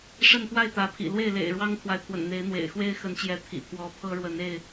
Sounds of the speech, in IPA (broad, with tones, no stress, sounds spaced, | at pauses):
ʂ ə˥˨ n p w a˥˨ ɪ̯ t̪ ä˨˦ pʰ ḭ˨˩ l w e˥˨ ɪ̯ l ḛ˨˩ ɪ̯ ɻ w ɑ˦ ŋ t̪ʰ w a˨ ɪ̯ pʰ w ə̰˨˩ n n̪ e˨˦ ɪ̯ n̪ w ḛ˨˩ ɪ̯ x w e˦ ɪ̯ x ə˨˦ n t͡ɕ j ɛ˨˦ t̪ʰ ḭ˨˩ pʰ w ɔ˨˦ pʰ ɤ˦ ɻ w ə˨˦ n e˥˨ ɪ̯